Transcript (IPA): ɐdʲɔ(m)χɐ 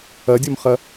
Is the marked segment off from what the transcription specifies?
no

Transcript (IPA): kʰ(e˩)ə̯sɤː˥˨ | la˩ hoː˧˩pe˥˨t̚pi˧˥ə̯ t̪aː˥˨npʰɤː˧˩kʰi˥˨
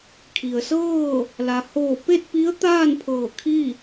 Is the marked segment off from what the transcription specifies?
yes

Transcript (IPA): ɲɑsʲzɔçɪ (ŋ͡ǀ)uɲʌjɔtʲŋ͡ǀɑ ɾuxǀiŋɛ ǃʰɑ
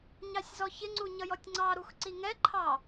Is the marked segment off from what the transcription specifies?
no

